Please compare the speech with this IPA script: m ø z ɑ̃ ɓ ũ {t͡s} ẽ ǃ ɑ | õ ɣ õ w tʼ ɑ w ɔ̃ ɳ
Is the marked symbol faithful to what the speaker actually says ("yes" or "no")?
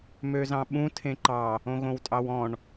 no